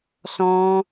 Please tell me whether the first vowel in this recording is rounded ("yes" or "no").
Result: yes